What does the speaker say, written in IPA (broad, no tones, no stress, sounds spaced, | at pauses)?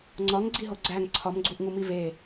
ŋ͡ǀ ɒ ŋ ɡ͡ǀ i ɦ o ɡ͡ǀ æ ŋ ǀʰ ɒ m ɡ͡ǀ u ʔ ŋ u m i v e